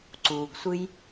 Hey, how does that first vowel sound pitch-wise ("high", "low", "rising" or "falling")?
low